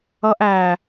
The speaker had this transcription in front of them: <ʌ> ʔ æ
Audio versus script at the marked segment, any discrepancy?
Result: no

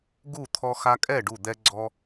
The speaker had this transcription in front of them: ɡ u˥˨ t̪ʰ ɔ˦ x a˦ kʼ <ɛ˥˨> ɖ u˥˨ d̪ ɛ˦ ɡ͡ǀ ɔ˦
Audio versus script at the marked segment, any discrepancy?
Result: no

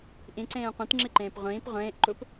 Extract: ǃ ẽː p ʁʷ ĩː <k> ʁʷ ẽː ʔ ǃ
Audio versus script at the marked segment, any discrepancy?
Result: yes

